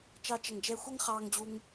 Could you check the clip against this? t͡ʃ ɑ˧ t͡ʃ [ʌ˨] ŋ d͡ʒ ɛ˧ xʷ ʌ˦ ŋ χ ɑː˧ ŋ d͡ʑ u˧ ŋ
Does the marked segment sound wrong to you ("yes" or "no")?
no